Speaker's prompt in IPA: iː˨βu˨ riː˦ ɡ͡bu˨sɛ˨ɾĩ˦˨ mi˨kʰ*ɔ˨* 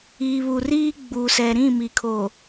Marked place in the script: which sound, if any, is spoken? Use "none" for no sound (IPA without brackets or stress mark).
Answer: o˨